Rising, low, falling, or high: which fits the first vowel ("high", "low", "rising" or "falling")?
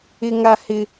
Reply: high